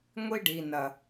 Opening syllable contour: high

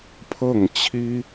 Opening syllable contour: falling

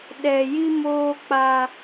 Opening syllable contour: low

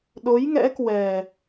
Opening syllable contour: rising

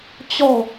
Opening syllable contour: falling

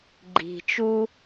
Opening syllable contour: low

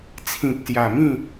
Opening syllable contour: low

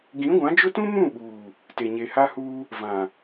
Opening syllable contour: rising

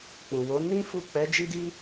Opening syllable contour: low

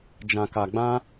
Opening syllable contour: low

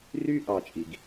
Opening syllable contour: high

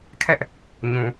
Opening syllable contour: high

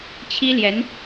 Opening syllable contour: high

